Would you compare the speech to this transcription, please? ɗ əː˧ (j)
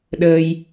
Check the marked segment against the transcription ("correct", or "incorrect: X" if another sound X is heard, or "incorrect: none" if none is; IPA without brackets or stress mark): correct